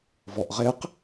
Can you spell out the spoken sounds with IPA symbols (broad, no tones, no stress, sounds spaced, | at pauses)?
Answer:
v ɔ ʔ ʁ e q